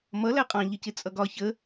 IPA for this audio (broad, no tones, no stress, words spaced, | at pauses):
mʌ læqʼɑ̃ ʎəcɪt͡sʼʌɡɒ çə